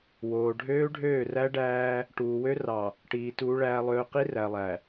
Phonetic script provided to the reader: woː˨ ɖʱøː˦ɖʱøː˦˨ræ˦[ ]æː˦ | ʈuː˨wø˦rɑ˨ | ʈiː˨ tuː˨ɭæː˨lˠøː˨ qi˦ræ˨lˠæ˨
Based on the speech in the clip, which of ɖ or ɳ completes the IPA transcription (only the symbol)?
ɖ